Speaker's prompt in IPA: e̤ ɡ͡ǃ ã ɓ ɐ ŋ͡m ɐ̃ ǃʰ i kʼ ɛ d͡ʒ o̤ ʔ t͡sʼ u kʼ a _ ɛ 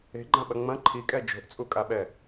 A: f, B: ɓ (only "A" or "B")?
B